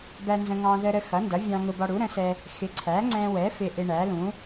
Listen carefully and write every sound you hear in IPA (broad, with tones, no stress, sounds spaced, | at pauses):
b æ˧ n z ə̃˧ ŋ ɑ̃˧ ð ə˧ ɾ ə˧ x ʌ˩˥ n d ʌ˩˥ vʲ ɑ̃˧ ŋ ʊ˧ b ɒ˧ ɽ u˩˥ ɾ ə̃˩˥ s ɛ˧ | x ɪ˩˥ ǀʰ æ˩˥ ŋ͡ǀ ɛ̃˧ w ɛ˩˥ f ɪ˧ ʔ ɪ˧ ɳ æ˩˥ l ũ˩˥